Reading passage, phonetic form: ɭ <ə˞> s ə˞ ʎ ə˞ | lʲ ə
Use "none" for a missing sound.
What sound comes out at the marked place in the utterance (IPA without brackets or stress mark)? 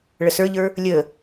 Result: ə